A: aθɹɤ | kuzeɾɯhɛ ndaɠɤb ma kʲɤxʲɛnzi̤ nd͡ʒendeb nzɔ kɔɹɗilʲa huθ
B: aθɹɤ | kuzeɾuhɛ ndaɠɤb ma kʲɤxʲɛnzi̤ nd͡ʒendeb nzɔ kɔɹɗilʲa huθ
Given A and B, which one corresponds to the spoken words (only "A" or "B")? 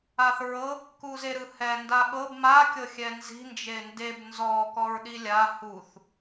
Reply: A